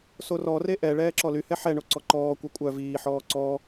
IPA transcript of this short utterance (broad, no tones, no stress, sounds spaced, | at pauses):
s o r ɔ r e ʔ ɛ ɭ ɛː ǁ ɔ l y h ɛ ħ ɛ ɳ o ǀ ɔ ǃ ɔː kʷ ɛ kʷʼ œ v iː ħ ɔː ǀ ɔ